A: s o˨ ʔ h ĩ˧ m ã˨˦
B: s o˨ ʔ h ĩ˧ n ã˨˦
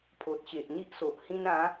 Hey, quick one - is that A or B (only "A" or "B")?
B